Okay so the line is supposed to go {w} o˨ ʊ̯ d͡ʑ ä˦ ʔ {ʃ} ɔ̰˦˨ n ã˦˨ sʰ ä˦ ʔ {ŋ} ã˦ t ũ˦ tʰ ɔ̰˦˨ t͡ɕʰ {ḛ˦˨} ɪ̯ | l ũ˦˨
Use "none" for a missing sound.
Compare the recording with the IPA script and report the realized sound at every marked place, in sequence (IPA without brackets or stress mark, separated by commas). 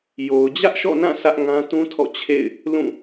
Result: j, ʃ, ŋ, ḛ˦˨